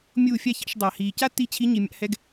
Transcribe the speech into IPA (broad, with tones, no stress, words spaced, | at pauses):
mʲuː˦˨fʲa˦çɑ̰˨˦ʃ dˤa˨hiː˨ ca˦tːi˧t͡ɕʰi˨˦ ɲi˨ mʲa̰˧hɛ˧ɡ